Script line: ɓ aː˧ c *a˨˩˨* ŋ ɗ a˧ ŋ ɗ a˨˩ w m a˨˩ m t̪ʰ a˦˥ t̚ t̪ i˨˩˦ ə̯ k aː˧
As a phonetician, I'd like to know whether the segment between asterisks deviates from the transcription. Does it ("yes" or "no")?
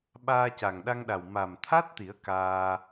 yes